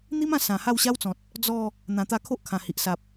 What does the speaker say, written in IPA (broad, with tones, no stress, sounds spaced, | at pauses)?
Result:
n̪ i˦ m ã˧ s ã˨˩ h a˥˧ w ɕ a˦ w t͡s ɔ̃˨ t̚ | d͡z ɔ˥˧ | n̪ ã˨˩ t̪ a˧ kʰ o˦ ʔ kʰ ã˨˩ h i˨ ʔ s a˨ p̚